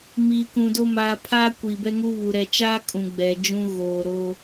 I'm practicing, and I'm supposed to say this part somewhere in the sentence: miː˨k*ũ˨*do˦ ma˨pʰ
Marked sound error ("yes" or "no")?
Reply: no